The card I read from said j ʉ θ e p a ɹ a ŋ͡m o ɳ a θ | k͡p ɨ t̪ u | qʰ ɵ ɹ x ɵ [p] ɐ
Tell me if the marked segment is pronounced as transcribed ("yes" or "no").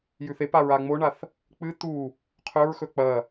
no